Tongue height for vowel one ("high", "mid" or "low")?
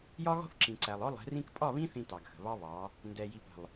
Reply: low